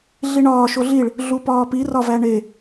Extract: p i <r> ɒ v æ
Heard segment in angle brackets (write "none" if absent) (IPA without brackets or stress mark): r